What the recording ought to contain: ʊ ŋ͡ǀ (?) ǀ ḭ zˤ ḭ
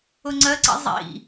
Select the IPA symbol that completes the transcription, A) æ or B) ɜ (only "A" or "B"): B